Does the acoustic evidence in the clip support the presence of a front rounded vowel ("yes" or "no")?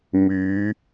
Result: yes